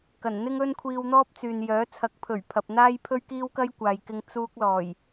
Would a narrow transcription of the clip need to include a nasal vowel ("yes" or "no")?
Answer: no